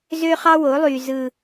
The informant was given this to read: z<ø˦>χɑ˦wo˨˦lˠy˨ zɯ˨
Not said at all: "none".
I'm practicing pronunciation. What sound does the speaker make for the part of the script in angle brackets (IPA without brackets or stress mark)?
ø˦